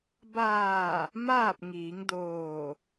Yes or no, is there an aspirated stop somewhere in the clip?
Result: no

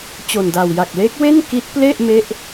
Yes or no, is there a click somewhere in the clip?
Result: no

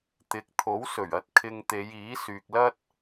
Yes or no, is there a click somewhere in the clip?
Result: no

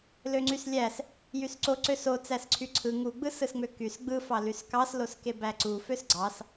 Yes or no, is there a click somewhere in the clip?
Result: yes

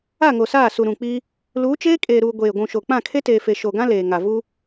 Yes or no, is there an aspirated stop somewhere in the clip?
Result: yes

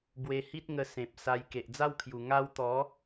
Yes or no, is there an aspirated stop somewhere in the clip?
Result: yes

